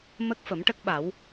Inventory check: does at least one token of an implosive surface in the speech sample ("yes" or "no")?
yes